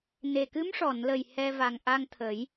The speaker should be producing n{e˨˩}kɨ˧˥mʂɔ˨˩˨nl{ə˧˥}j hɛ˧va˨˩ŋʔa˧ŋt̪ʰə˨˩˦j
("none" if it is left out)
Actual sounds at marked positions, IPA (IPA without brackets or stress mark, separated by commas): e˨˩, ə˨˩